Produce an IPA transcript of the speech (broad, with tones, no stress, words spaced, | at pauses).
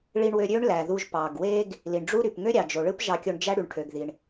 ɭi˧ɳwø˧ɾʲø˥ɳ læ˩ðu˧ʒ pɑ˩ɡwe˥ɡ | li˩ɳɖ͡ʐu˥ɾy˩p ŋø˥ɾʲɑ˩d͡ʒo˩ɭɯ˥p ʒɑ˧kʲo˧ɳ d͡ʒæ˥ ɽy˩ɳʈʰø˩ɡði˩ɳ